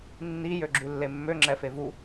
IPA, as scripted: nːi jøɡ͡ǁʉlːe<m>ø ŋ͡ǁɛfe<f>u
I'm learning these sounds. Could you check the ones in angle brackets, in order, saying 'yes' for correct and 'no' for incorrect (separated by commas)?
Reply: no, no